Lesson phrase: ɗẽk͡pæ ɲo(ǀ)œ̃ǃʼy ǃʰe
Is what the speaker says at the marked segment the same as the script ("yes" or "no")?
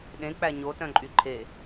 no